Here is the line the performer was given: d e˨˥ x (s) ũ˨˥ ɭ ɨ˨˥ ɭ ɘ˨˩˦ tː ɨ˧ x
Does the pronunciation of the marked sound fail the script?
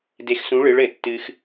no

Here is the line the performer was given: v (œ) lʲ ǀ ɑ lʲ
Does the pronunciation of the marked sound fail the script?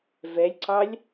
yes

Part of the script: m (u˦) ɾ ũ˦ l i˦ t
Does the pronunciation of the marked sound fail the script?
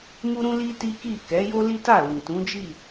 no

